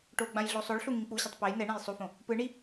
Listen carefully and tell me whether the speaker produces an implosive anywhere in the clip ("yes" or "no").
no